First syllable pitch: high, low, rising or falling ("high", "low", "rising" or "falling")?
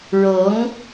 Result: rising